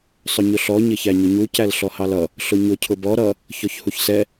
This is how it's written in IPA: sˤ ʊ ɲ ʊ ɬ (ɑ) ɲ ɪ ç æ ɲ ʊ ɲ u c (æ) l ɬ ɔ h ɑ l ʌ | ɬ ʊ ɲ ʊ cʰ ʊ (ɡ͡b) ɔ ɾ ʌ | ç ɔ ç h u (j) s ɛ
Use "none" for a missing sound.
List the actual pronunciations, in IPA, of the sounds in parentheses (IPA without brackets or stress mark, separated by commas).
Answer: ɔ, æ, b, ç